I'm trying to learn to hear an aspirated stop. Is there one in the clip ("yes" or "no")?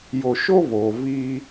no